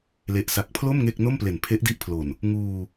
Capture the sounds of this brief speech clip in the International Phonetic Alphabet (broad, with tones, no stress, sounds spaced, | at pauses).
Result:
l e˨˩ ʔ s a˨˩ k̚ pʰ l o˥˩ m ŋ e˥˩ k̚ n o˥˩ m p l e˨˩ n pʰ e˦˥ ʔ d i˦˥ ʔ pʰ l o˨˩ n | ŋ uː˧